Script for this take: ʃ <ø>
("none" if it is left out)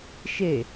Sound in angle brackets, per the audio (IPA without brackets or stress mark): e